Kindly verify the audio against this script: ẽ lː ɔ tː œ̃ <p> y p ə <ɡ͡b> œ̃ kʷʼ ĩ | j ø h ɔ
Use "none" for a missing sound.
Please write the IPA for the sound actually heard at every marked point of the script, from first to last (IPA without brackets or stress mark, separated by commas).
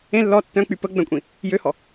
k͡p, ɡ͡b